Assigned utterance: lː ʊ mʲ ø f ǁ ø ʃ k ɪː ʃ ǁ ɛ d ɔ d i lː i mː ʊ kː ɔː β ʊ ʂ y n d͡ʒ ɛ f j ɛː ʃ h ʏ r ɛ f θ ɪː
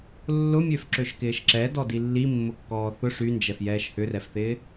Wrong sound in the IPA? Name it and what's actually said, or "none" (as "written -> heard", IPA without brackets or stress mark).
β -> θ